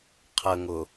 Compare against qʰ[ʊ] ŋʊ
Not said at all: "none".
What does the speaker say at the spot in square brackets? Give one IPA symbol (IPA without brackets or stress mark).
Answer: ə